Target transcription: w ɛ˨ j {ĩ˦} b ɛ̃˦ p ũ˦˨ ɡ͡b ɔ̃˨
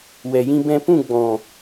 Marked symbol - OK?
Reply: yes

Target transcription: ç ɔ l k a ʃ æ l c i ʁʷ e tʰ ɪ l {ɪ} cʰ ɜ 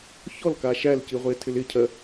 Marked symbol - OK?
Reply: yes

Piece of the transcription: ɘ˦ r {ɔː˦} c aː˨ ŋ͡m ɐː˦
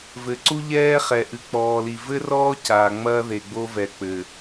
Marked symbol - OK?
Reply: yes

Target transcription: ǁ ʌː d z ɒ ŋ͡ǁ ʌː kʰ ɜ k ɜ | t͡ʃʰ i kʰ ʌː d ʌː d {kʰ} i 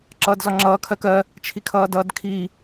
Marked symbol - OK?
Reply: yes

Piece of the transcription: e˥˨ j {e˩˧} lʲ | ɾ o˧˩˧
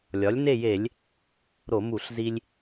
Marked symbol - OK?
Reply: no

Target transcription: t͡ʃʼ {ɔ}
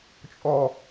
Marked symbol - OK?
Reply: yes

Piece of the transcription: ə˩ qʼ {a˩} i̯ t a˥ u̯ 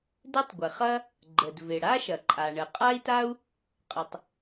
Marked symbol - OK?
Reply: no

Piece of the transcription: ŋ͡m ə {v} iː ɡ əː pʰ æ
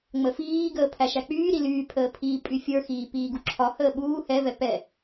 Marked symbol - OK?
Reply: no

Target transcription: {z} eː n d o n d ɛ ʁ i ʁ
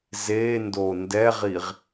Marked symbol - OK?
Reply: yes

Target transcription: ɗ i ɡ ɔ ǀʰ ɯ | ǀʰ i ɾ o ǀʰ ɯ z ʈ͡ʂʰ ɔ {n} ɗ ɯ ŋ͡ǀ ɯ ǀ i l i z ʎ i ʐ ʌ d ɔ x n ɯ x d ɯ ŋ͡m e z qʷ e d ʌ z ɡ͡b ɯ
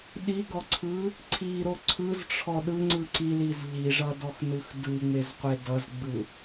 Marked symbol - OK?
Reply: no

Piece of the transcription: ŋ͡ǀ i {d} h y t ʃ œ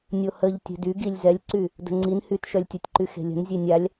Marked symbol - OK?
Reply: no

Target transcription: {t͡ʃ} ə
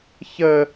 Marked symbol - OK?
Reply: no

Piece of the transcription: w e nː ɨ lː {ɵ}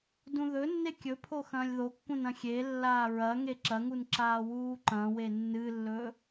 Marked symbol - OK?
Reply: yes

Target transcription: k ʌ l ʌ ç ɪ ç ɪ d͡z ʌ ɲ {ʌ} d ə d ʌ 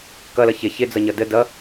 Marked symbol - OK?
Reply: yes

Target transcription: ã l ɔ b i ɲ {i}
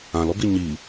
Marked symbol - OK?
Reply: yes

